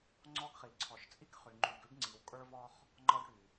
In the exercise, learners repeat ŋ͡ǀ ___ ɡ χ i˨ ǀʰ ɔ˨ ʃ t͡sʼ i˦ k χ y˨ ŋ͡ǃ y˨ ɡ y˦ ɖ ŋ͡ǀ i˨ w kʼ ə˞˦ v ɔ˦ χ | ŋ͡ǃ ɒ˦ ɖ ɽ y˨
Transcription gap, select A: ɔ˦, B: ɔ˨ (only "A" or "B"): A